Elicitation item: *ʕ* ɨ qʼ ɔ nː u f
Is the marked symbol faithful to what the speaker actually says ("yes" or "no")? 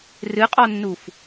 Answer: no